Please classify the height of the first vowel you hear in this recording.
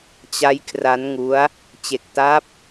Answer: low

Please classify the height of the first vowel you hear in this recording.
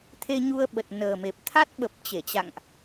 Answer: mid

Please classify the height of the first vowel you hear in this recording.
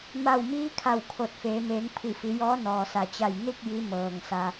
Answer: low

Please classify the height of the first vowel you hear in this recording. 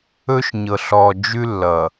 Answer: mid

